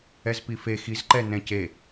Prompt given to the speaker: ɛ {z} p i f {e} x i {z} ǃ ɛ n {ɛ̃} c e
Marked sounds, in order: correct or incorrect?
correct, correct, correct, correct

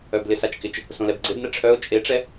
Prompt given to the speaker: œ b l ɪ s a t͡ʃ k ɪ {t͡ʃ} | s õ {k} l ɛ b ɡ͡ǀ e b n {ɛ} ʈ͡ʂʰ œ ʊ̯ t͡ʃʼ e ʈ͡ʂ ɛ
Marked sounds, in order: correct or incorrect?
correct, incorrect: none, correct

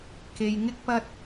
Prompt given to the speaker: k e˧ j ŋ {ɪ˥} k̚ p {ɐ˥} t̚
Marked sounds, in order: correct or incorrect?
correct, correct

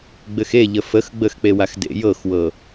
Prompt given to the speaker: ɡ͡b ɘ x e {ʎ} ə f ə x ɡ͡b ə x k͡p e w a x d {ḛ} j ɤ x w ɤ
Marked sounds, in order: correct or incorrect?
correct, correct

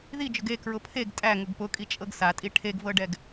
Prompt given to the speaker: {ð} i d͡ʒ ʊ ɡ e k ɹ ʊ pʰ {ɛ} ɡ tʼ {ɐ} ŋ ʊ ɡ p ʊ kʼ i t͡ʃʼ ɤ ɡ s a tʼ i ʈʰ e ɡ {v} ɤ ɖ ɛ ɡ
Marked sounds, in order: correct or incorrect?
correct, incorrect: e, incorrect: æ, correct

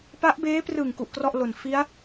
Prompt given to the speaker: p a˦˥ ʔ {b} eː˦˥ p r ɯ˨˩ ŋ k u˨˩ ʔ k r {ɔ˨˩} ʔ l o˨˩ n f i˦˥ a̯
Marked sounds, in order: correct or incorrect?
correct, incorrect: ɔ˥˩

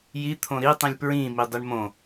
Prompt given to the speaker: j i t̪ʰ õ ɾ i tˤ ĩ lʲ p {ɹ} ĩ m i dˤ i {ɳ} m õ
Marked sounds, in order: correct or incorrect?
correct, correct

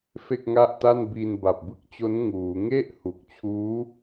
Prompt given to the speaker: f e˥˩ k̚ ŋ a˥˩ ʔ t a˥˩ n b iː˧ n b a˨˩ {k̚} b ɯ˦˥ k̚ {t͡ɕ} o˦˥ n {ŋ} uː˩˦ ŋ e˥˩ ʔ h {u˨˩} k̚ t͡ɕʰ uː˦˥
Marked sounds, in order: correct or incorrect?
incorrect: p̚, correct, correct, correct

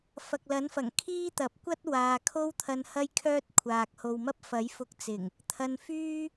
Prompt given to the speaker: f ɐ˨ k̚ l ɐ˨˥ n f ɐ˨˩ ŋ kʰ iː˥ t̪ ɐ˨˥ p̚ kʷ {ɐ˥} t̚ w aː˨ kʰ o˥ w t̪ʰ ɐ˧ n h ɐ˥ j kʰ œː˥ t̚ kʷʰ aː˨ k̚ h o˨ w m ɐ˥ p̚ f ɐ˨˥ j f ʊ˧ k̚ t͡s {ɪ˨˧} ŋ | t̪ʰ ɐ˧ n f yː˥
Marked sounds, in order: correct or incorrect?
correct, incorrect: ɪ˨˩

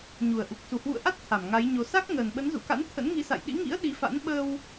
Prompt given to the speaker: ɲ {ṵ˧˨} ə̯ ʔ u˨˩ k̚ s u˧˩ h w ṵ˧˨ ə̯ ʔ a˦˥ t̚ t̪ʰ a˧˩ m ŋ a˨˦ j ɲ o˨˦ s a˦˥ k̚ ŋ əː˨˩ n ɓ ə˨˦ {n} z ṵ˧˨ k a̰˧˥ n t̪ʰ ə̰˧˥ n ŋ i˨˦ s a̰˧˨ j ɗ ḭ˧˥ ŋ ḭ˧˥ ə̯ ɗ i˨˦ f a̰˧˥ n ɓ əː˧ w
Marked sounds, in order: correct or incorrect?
incorrect: u˨˩, correct

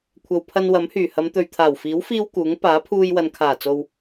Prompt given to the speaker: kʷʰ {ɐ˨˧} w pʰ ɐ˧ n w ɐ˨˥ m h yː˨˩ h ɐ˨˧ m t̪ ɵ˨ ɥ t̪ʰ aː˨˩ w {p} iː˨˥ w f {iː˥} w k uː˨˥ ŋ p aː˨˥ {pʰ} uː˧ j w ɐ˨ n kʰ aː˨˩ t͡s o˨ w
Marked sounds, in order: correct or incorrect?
incorrect: ɐ˨, incorrect: f, correct, correct

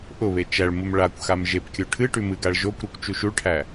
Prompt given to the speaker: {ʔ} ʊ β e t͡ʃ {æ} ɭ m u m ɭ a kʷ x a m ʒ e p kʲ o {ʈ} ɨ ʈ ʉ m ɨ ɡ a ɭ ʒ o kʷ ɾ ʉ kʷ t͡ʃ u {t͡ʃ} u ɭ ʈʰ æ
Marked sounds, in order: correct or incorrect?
correct, correct, incorrect: ʈʰ, incorrect: ʃ

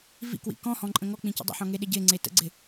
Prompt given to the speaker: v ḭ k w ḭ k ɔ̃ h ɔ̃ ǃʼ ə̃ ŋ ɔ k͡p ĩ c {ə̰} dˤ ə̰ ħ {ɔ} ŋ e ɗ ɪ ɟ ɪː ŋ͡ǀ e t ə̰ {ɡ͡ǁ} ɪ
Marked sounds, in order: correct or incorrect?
correct, incorrect: ɔ̃, incorrect: ɡ͡ǀ

